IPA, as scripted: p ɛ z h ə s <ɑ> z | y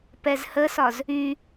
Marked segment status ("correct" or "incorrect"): incorrect